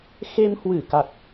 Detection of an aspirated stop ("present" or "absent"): absent